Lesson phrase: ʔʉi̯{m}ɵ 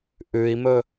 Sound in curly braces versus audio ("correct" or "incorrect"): correct